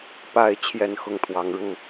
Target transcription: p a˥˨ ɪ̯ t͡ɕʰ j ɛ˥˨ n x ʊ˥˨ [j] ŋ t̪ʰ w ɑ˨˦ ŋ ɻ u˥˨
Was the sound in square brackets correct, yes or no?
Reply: no